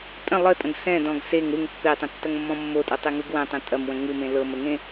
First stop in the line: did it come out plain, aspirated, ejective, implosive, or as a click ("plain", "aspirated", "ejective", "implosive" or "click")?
ejective